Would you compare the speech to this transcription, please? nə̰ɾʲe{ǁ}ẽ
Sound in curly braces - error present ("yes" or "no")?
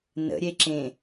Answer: no